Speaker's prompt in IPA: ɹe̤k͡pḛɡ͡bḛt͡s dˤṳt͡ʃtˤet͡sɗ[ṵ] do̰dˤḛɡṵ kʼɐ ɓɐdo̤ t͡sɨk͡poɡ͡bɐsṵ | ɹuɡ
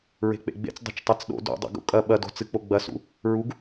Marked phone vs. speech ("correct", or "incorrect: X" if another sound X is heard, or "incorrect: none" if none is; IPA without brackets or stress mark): incorrect: o̰